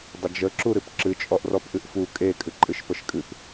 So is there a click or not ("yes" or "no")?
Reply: yes